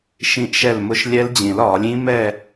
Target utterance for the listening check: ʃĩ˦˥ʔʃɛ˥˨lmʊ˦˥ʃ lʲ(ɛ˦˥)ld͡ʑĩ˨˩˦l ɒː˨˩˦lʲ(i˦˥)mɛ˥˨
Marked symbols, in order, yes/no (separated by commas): yes, no